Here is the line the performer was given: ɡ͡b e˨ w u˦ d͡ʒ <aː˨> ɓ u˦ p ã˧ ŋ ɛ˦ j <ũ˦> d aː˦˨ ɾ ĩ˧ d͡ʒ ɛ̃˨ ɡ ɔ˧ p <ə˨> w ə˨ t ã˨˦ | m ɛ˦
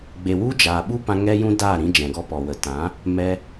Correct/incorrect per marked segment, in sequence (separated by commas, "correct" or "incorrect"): correct, correct, incorrect